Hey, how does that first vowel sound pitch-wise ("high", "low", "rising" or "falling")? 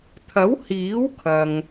rising